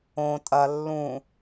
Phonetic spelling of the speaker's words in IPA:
õ tʼ ɐ lː ũ

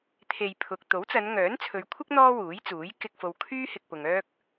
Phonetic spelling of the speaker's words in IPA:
t̪ʰ e˧ j pʰ ʊ˨ k̚ t̪ o˨˥ w t͡s ɐ˨˧ n ŋ œː˨˥ n t͡sʰ ɵ˨˧ ɥ kʷʰ ɪ˥ k̚ n̪ ɔː˥ w uː˨˥ j t͡s uː˨˥ j k ɪ˧ k̚ f o˨ w kʰ yː˥ h ɪ˧ k̚ p ʊ˨ ŋ œː˥ k̚

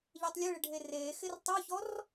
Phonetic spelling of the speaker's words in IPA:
ʎ e tˤ lʲ e ɭ ɪ ɖʱ e r eː x ɪ r tˤ u ç ɔ r

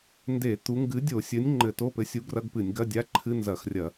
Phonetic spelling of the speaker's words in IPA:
n d e˧˩˧ t̪ u˨˥ ŋ ɡ ɨ˨˥ dʲ o˧˩˧ sʲ ɘ˨˥ nʲ ŋ͡ǃ ɘ˧˩˧ t o˧˥˧ p ɘ˨˥ sʲ u˨˥ ɡ r ɐ˧˥˧ ɡ p ɨ˧˩˧ nʲ ɡ ɐ˧˥˧ dʲ a˧˥˧ ǃʰ ɨ˧˥˧ n z ɐ˧˩˧ x rʲ ɐ˧˩˧

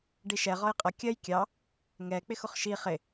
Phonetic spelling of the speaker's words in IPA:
ɖ i ʃ ɛ ʁ ɒ j qʼ ʌ kʲ ɜ j kʲ ɑ | ŋ ɛ k͡p ɪ x ʊ χ ʃ i χ ɪ

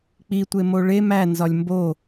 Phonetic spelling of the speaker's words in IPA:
k͡p i tʷ e m o ɭ e m æ n z ɒ lʲ m b o

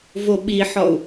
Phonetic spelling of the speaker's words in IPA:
v o ɓ i ħ ɔ u̯

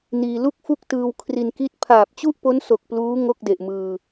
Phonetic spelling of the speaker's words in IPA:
n iː˧ l u˥˩ k̚ f u˥˩ k̚ t ɯː˧ w kʰ r i˧ n k i˥˩ t̚ pʰ aː˨˩ p̚ t͡ɕ u˥˩ ʔ p o˦˥ n s o˨˩ k̚ p l uː˦˥ ŋ o˥˩ k̚ d e˨˩ ʔ m ɯː˧

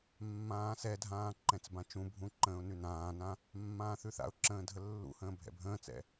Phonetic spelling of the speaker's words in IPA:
mː ãː s ɛ dʱ ãː ǃ ɛ̃ t͡s b ã t͡ʃ ũ bʱ ũ ǃ ə̃ː ʊ̯ n ʉ n ãː n ã | mː ãː θ ʉ θ a̰ ʊ̯ ǁ ə̃ː dʱ ə lː ṵ h ə̃ː bʱ ɛ̰ bʱ ə̃ː t͡s ɛ̰

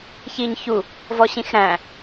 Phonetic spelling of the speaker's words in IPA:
ç i ɲ ç u | v ɔ ɕ ĩ x ɾ æ̃

